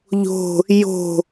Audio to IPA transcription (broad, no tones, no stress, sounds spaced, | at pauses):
ʎ o̤ | j o̤